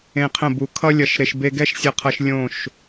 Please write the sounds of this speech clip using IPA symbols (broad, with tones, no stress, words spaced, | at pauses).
ẽ˧qʰə̃˦˨bu˨˦ kʰʌ˧lʲʌ˨ʃ ɾe˨ʃ be˧ɡɛ˦ʃsʲʌ˧qʰʌ˧ʃ lʲõ˦˨ʃ